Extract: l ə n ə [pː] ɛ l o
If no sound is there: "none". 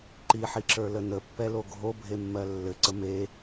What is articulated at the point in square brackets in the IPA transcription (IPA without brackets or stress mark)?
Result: pː